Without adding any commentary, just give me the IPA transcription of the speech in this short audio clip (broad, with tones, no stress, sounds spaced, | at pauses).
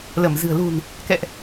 l ə˧˩ m z ɨ̤˨˩ ə̯ l ṳ˨˩ n | k ɛ̰˧˨ ʔ